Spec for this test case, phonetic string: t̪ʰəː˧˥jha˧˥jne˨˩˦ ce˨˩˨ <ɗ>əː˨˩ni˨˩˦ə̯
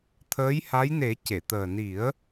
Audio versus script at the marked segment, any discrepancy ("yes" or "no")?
yes